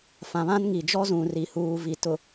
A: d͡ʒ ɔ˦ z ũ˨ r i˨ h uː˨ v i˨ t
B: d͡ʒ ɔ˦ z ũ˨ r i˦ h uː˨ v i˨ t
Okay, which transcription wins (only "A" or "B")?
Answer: A